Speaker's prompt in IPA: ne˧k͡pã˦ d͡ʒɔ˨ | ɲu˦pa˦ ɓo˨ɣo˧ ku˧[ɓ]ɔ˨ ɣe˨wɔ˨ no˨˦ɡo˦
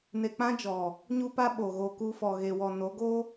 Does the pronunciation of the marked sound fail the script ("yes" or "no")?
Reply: yes